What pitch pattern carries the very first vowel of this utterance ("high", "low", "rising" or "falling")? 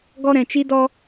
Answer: high